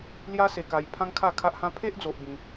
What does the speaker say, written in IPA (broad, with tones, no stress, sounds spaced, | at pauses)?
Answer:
l j a˦ s e˧ k a˧ j pʰ ã˦ ŋ kʰ a˥˧ kʰ a˦ ʔ h ã˦ pʰ e˦ ʔ d͡z o˦ ʔ b ĩ˦